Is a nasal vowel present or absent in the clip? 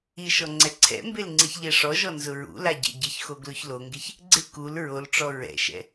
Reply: absent